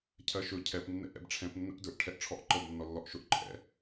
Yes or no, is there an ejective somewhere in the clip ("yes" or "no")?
yes